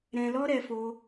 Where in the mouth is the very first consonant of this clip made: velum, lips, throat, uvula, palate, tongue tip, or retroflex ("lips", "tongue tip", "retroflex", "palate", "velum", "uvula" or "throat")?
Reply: tongue tip